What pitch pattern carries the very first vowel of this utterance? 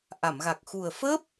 low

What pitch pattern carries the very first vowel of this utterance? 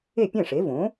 falling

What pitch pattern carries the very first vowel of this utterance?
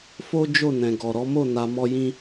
high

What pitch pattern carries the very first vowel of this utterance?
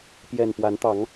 low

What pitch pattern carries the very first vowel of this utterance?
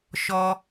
high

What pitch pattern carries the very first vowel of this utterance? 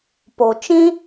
low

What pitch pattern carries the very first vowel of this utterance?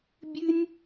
high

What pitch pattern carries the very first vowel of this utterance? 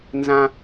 high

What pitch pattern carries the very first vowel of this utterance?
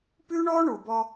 high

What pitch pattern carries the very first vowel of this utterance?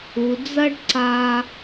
low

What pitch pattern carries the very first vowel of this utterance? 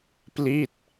falling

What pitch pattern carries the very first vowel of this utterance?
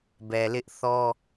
low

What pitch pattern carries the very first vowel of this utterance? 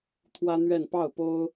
high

